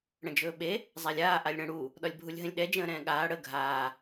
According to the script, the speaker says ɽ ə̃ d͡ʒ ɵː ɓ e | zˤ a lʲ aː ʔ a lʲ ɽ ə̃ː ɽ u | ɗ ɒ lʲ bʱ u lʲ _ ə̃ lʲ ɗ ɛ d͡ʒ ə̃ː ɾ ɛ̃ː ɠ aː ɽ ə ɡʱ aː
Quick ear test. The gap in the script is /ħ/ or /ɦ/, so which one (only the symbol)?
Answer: ɦ